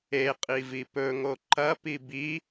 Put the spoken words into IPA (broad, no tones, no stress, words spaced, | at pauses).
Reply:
eqʼivi pɵŋo ǃɐpi bi